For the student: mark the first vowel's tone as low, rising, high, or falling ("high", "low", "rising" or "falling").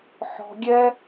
low